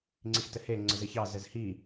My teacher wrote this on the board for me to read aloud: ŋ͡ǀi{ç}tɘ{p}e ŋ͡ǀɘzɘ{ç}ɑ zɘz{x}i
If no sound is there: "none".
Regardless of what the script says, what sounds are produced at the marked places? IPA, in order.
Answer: x, h, ç, h

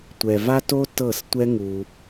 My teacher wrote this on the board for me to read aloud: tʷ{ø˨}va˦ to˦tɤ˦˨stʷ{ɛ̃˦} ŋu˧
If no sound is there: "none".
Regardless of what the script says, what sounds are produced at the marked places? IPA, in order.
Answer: ɛ˨, ɛ˦

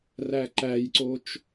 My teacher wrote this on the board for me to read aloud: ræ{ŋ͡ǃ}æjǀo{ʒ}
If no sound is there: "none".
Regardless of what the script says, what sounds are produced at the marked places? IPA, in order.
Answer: ǃ, t͡ʃ

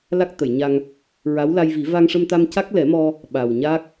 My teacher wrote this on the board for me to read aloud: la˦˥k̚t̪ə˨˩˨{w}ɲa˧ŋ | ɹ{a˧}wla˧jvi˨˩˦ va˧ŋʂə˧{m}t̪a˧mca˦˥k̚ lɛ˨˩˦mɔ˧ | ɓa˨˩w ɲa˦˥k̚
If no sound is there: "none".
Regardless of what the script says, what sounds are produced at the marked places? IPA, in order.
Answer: j, a˧˥, m

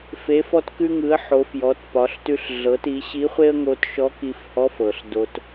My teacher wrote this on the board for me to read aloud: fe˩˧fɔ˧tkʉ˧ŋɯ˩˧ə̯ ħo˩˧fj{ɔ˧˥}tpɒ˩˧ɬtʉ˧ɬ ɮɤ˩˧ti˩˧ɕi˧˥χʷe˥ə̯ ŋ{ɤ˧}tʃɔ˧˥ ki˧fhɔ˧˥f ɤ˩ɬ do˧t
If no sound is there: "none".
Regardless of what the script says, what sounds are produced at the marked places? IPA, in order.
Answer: ɔ˩˧, o˧

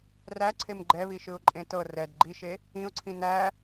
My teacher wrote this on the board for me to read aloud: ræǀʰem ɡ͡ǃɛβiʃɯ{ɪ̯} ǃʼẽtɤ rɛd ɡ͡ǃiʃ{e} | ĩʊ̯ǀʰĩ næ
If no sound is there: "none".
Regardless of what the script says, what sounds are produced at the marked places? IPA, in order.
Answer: ʊ̯, e

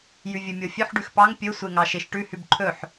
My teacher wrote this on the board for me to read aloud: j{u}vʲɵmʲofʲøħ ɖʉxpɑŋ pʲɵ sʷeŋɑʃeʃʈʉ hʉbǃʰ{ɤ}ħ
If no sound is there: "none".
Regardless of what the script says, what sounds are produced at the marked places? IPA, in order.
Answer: ʉ, ɵ

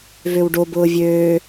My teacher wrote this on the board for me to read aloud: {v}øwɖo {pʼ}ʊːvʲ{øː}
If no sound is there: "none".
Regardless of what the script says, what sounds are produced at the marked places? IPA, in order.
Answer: v, b, øː

